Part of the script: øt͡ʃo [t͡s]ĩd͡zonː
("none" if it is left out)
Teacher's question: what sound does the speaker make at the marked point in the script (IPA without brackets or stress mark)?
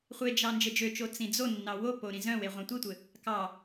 t͡s